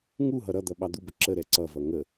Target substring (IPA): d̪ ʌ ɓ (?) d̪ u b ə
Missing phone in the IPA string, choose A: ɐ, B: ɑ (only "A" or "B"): B